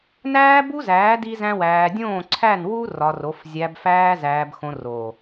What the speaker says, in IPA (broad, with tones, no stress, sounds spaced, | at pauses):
n æː˦ b u˦ z æː˨˦ d i˦ z æ̃˦ w æː˧ dʲ õː˦˨ ǀʰ æ˦˨ n w u˦ r ɒ˧ r o˨˦ f zʲ æ˧ b f æː˦ z æː˧ b x õ˧ r o˨